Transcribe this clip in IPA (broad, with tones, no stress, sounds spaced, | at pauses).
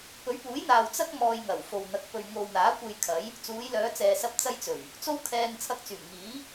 p ɵ˨˥ ɥ p uː˨˥ j n̪ aː˨ w t͡s ɐ˥ k̚ m ɔː˧ j ŋ ɐ˨˩ w f o˨ w n̪ ɐ˨˥ k̚ p ɵ˨ ɥ ŋ o˨ w n̪ aː˨˥ kʷ e˧ j kʰ ɐ˨˥ j | t͡s uː˨˧ j l œː˨˧ t͡s ɛː˨ s ɐ˧ p̚ t͡s ɐ˧ j t͡s ɵ˨˩ ɥ | t͡s o˥ w kʰ ɛː˧ ŋ t͡sʰ ɐ˧ k̚ t͡s yː˨˩ m ŋ iː˨˥